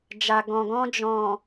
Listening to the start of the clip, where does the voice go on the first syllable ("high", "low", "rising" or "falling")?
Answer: low